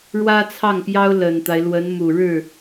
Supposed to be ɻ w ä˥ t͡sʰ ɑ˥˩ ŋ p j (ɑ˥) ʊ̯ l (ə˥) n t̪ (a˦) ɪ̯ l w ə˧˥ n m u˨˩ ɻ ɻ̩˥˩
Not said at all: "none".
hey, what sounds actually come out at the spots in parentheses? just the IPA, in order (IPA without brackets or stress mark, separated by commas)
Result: ɑ˥, ə˨˩, a˦